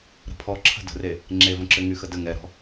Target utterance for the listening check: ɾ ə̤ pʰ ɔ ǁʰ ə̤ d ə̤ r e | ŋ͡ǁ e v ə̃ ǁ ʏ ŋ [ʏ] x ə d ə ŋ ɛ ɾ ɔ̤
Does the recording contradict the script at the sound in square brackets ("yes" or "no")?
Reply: yes